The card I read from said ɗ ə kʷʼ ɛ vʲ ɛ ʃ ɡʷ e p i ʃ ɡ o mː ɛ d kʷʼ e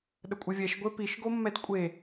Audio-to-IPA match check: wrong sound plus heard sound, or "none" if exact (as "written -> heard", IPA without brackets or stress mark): none